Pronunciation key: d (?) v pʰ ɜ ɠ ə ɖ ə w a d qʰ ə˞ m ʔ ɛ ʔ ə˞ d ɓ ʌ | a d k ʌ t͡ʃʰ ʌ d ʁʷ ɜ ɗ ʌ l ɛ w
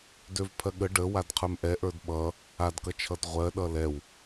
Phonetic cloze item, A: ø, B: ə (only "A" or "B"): A